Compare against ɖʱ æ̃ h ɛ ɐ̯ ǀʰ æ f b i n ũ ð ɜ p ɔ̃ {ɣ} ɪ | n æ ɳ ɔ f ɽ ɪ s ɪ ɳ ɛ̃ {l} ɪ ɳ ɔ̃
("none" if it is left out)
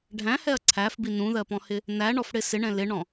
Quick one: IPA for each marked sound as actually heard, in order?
h, l

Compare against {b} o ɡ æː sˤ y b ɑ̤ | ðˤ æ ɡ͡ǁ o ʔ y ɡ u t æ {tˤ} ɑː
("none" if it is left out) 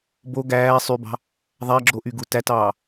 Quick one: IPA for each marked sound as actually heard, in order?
b, t

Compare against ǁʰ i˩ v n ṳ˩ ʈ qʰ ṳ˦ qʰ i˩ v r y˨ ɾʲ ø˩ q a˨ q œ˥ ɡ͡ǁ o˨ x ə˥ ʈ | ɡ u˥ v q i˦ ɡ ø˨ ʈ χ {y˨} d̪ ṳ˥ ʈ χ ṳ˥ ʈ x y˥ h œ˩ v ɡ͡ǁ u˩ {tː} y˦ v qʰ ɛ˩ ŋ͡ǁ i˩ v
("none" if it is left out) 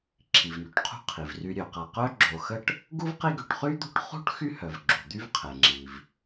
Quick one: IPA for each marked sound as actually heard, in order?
y˥, d̪

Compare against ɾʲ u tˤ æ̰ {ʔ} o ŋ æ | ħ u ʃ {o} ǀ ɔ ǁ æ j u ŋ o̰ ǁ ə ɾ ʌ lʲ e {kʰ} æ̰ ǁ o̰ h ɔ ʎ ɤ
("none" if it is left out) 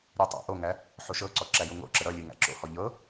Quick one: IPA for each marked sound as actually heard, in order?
ʔ, ɤ, ŋ

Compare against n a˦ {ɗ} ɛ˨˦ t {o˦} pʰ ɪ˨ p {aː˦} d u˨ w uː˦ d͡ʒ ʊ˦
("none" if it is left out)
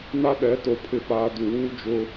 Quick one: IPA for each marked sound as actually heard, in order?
ɗ, o˨, aː˨

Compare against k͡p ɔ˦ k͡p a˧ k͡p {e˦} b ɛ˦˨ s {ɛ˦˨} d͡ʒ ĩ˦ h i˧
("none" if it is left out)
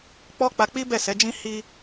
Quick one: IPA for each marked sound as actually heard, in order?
i˦, ɛ˨˦

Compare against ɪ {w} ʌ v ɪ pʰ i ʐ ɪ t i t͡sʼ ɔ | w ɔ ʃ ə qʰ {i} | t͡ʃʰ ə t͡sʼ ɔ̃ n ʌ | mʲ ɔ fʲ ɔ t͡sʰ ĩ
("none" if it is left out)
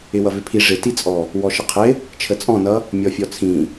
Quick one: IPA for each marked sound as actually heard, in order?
w, ɪ

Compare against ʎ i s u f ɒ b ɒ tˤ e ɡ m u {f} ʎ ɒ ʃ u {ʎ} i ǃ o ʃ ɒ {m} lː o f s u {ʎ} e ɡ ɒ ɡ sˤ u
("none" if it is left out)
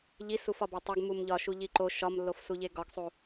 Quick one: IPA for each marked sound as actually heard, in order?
m, ʎ, m, ʎ

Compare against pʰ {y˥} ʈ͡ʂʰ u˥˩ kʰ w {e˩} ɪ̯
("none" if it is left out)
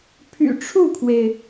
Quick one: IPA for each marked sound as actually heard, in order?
y̰˨˩, e˩

